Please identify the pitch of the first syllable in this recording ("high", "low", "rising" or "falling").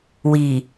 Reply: low